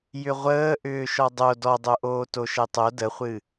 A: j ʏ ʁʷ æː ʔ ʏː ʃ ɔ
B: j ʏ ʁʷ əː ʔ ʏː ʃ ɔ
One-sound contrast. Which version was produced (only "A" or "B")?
B